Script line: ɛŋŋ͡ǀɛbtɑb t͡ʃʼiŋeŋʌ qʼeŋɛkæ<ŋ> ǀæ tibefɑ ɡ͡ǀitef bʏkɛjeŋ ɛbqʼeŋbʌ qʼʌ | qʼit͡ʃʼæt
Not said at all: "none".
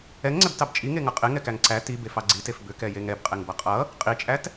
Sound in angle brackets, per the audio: ŋ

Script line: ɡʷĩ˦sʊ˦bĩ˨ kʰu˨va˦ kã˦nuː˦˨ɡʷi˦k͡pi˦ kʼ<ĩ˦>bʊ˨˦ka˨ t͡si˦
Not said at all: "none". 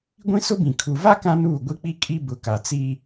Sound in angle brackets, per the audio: i˦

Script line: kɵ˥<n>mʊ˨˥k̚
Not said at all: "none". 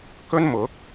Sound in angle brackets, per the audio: n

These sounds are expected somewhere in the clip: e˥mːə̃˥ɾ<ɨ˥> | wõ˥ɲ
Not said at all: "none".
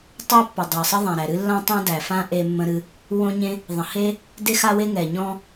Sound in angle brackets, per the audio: ɨ˥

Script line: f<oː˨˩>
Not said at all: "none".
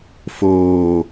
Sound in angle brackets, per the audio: oː˧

